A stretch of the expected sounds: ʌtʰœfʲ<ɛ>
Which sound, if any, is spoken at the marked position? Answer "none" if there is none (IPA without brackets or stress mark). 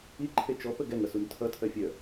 œ